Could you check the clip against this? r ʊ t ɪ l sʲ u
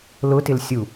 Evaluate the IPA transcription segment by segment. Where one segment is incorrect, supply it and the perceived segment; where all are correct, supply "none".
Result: r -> l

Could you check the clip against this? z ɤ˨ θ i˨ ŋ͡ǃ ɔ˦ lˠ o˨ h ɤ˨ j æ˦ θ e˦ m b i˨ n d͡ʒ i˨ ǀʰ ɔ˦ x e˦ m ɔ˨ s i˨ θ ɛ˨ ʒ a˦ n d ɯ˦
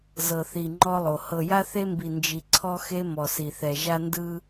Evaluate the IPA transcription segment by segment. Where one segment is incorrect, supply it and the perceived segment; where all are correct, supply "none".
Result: æ˦ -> a˦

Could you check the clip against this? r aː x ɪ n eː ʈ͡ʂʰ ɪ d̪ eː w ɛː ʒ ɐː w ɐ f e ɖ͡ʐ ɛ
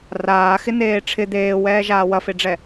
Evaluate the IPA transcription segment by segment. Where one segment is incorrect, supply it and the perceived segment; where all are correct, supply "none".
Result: ɐː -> aː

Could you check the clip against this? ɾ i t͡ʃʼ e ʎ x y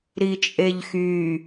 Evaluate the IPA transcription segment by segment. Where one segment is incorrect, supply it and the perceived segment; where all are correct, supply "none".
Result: none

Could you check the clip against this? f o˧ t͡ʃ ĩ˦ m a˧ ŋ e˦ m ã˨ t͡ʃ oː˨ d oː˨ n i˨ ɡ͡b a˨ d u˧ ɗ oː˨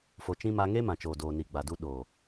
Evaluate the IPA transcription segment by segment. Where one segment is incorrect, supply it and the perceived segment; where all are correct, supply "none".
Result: none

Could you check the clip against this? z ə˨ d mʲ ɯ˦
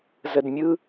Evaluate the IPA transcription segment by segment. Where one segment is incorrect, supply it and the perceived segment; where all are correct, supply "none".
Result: none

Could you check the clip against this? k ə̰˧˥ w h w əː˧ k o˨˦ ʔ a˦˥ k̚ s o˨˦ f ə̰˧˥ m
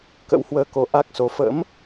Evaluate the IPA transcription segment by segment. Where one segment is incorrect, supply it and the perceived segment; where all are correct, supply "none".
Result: none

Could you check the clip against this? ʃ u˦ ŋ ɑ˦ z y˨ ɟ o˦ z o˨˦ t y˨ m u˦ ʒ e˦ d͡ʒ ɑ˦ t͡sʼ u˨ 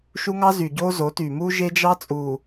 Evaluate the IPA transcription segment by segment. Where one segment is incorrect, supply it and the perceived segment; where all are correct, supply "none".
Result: none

